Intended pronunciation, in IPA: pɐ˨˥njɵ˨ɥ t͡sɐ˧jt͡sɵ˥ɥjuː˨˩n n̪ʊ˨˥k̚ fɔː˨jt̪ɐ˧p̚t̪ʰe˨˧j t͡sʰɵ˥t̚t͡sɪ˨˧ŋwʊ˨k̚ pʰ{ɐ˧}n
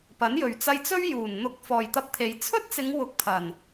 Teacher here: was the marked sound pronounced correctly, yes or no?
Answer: no